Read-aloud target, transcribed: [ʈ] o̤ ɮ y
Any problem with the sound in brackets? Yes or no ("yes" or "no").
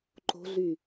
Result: yes